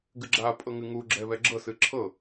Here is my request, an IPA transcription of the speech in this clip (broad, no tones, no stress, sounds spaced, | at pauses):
ɡ ɨ ɡ͡ǁ a pʼ ɤ ŋ ɨ ŋ u ɡ͡ǁ ɛ β ɛ ɡ͡ǁ ɤ s ɨ ǁʰ ɤ